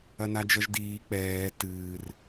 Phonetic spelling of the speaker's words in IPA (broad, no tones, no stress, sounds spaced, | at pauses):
ɐ n a d͡ʒ ʌ ʒ d iː k͡p ɛː t ɨː r